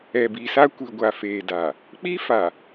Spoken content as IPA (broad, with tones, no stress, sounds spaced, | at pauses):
ɛ˨ b i˨ s a˦ kʷ i˨ ɡʷ a˨ f eː˨ d a˨ | k͡p i˦ f a˨